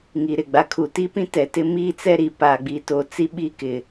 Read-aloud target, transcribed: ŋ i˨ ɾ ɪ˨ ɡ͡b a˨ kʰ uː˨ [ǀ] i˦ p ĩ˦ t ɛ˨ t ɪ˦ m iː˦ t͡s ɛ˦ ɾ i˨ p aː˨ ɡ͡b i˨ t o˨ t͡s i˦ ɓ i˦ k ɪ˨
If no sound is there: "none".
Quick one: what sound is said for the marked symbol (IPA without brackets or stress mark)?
t